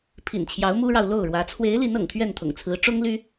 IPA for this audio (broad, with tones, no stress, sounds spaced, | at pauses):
pʰ ḭ˨˩ n t͡ɕʰ j ɑ˨˦ ʊ̯ m u˦ ɻ ɑ˨ ʊ̯ l o˥˨ ʊ̯ ɻ w ä˨˦ t͡sʰ w e˨˦ ɪ̯ l i˨˦ n ɤ̰˨˩ ŋ t̪ʰ ɥ ɛ˥˨ n t̪ʰ ʊ̰˨˩ ŋ t͡sʰ ɹ̩˨˦ ʈ͡ʂ ʊ˦ ŋ l y˦